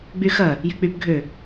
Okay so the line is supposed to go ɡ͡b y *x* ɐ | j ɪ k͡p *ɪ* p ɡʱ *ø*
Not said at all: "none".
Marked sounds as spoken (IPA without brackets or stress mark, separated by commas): x, y, ø